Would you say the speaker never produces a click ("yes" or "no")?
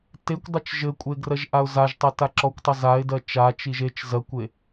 no